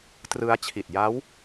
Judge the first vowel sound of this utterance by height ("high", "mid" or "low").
high